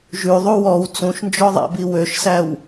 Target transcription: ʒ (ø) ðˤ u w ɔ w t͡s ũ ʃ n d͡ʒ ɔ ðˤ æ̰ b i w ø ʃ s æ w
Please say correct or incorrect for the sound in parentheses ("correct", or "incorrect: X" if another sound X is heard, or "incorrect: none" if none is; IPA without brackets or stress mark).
incorrect: ʉ